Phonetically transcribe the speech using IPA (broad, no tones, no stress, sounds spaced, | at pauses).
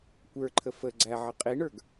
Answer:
kʷ ə˞ ǃʰ ə f ə ɡ͡ǀ æ ʕ ʌ qʼ i ɳ ə˞ ɡ